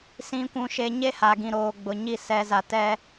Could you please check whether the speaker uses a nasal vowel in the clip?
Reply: yes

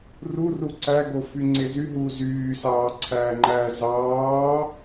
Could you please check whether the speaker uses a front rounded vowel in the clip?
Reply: yes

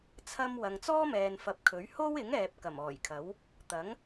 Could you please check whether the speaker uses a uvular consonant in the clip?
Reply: no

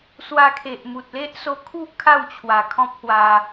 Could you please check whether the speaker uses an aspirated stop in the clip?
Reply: yes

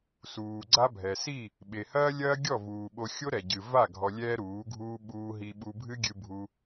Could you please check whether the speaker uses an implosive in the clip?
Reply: yes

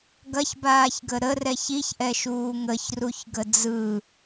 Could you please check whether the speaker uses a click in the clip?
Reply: no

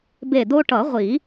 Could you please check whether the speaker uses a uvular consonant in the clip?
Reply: yes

